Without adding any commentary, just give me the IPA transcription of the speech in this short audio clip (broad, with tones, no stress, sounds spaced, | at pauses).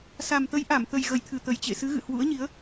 s a˨˩ m t̪ ə˨˦ j ʔ a˧˩ m t̪ ə˨˩ j ɣ ə˧˩ j t̪ʰ ɨ˧˩ t̪ ə˨˩ j t͡ɕ ḛ˧˨ s ɨ˨˦ ɣ ɨ̰˧˨ h w ṵ˧˥ ə̯ ɲ i˨˦ ə̯